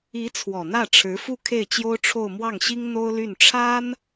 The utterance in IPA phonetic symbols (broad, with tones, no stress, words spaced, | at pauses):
i˧˥ t͡sʰwɔ˨˩n̪ä˥˩ʈ͡ʂʰɻ̩˧˥ fu˥˧kʰe˥˩ɪ̯t͡ɕjo˥ʊ̯ ʈ͡ʂʰo˥˧ʊ̯ mwɑ˥˩ŋɕi˥ŋ n̪o˥ʊ̯ly˥˩n ʈ͡ʂʰa˥n